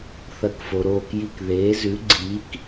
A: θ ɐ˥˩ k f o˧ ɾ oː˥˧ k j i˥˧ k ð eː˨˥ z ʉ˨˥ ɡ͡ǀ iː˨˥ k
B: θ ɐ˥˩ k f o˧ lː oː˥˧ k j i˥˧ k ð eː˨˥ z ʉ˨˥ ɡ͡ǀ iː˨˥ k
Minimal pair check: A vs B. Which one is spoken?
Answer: A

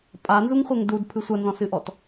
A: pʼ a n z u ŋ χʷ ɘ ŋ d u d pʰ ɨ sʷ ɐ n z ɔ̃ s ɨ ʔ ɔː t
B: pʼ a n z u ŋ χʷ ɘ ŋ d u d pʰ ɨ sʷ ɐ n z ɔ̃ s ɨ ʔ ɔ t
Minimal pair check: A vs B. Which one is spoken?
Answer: B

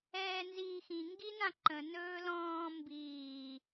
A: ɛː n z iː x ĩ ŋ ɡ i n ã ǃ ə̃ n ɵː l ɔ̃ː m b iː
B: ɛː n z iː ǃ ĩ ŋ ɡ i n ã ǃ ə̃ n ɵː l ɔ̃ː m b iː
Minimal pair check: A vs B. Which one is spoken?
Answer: A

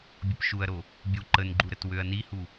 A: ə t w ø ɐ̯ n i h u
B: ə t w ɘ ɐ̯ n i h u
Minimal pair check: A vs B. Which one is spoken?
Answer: A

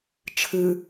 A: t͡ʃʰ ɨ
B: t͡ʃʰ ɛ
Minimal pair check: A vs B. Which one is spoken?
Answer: A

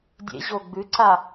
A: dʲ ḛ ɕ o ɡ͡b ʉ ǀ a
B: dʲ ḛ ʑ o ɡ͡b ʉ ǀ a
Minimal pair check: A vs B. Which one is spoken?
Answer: B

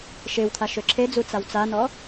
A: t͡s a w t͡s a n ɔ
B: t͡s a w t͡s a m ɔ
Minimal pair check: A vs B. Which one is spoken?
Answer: A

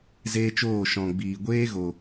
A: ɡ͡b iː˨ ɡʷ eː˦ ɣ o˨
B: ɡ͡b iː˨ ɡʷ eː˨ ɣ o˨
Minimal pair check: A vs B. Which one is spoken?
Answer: A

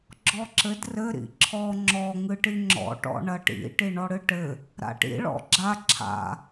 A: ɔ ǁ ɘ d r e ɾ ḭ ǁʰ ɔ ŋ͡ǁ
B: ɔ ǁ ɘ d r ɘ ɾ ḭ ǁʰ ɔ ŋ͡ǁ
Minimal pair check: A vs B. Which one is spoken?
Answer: B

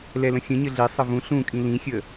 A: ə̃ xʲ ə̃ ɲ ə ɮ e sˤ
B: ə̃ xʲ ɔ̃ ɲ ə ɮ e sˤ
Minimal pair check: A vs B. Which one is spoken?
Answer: A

